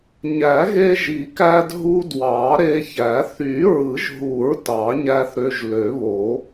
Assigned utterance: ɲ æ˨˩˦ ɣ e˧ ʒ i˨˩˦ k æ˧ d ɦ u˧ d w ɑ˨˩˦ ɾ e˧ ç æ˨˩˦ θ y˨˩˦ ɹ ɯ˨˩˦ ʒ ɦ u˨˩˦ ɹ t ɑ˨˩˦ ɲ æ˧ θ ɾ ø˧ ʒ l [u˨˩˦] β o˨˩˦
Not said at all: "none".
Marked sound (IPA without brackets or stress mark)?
ø˨˩˦